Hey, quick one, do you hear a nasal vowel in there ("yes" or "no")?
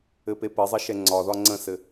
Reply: yes